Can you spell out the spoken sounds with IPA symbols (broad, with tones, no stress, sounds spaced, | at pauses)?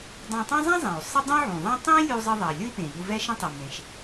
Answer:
dˤ ã˧ tˤ ã˥ zˤ ã˥ zˤ ẽ˩ u̯ sˤ ə˥ dˤ ũ˥ ʕ ũ˩ ðˤ ã˥ tˤ ĩ˥ lʲ u˧ zˤ ə˧ ðˤ ɛ˩ lʲ ʊ˥ i̯ p ẽ˩ ʎ u˧ v ɛ˥ ʃ ə̃˥ tˤ i˩ m ẽ˩ ʃ